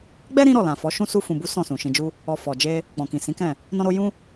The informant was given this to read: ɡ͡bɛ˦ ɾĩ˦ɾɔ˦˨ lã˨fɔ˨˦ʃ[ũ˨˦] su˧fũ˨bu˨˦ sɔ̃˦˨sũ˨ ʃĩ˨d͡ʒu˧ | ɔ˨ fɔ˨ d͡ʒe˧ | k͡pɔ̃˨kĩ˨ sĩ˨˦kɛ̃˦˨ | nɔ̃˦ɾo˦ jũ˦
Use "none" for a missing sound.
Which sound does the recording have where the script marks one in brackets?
ũ˦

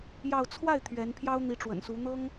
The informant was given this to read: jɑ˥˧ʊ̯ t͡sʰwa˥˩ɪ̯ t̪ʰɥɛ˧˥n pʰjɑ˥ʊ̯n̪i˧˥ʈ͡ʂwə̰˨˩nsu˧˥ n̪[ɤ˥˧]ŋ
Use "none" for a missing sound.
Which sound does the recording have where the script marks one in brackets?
ɤ˥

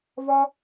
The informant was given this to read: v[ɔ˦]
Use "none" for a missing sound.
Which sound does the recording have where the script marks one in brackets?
ɔ˦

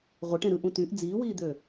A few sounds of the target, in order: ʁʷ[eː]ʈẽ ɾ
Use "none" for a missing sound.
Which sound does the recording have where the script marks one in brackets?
e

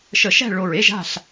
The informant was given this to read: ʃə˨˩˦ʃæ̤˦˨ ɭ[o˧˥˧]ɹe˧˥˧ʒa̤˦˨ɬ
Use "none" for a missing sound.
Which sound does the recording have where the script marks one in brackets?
o˨˩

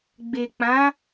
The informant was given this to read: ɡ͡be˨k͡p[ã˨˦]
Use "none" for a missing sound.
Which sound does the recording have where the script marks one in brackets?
ã˨˦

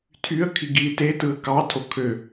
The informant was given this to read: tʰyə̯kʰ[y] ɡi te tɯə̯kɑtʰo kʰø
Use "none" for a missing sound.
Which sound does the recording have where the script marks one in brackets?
i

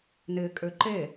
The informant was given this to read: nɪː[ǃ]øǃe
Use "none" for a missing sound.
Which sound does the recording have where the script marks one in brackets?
kʼ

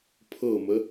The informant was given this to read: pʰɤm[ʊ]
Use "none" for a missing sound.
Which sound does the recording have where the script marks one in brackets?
ə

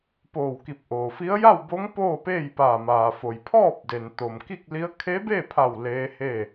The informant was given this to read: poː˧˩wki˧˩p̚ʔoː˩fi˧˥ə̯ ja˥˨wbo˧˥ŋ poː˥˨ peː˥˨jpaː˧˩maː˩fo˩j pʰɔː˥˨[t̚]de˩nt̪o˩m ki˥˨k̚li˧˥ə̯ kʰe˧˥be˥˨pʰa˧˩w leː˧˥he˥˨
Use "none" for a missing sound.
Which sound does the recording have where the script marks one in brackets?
p̚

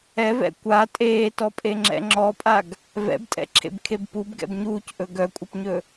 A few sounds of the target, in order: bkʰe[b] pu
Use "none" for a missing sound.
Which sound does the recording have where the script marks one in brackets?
b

